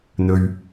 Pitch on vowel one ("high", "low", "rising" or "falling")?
low